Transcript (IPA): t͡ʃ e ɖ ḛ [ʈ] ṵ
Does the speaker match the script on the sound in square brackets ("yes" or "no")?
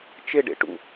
yes